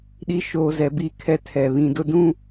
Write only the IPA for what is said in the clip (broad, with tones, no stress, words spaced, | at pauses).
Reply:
ɗi˨˦ʃoː˨ zɛ˨bi˦˨kʰɛ˦ tʰɛ˨βĩ˨dʊ˦ dũ˦